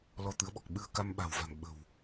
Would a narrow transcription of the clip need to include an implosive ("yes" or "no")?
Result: yes